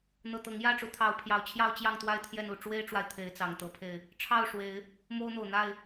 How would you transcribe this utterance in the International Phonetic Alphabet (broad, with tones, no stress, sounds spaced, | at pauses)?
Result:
n̪ ɤ˨˩ t̪ ɤ˨˦ ŋ j ä˥˨ ʈ͡ʂ u˨˦ t̪ʰ ɑ˨˦ ʊ̯ pʰ j ɑ˨˩ ʊ̯ t͡ɕʰ j ɑ˥˨ ʊ̯ t͡ɕ j ɑ˥˨ ŋ t̪ w a˥˨ ɪ̯ t̪ʰ j ɛ˥˨ n u˨˩ ʈ͡ʂ w e˦ ɪ̯ ʈ͡ʂ w a˨ ɪ̯ t̪ʰ e˨˦ ɪ̯ t͡s ɑ˨˩ ŋ t̪ ɤ˨˦ pʰ e˧ ɪ̯ | ʈ͡ʂʰ ɑ˥˨ ʊ̯ ʂ w e˨˦ ɪ̯ | m o˦ ʊ̯ n̪ o˨˩ ʊ̯ n̪ a˥˨ ɪ̯